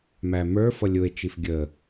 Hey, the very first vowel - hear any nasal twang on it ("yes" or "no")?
no